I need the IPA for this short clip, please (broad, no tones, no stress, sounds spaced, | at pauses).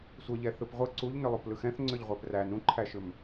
sʷ ə ʎ ɛ θ ɯ p ʁʷ ɯ ǀ u ʎ n ʏ lˠ u p l ɯ x ɛ̃ θ ŋ͡ǀ ʏ ʎ ʁʷ ɛ p r æ n ũ ǃʰ æ ʃ ʏ m